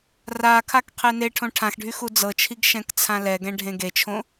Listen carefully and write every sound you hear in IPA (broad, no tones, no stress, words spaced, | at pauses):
rakʰak qʰeneʈʰõ ʈʰãxɖʱy xud͡zɤt͡ʃʰiɡ ʃɛ̃kt͡sʰãlɛɡɛ̃ ɖʱẽɡet͡ʃʰõ